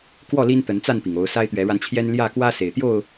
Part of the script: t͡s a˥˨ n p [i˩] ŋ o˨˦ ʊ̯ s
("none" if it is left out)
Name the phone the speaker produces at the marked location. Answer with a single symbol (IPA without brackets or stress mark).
i˩